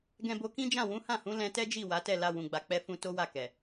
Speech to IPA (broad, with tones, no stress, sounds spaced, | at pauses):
ɡ ɛ̃˧ b o˧ k ĩ˦ d͡ʒ ã˦˨ w ũ˨˦ h ã˦˨ h ũ˨˦ l ɛ̃˧ t ɛ˦ d͡ʒ i˦˨ w a˨˦ t ɛ˦˨ l a˧ w ũ˨ ɡ͡b a˨ k͡p ɛ˧ f ũ˧ t o˦ w a˦˨ k ɛ˨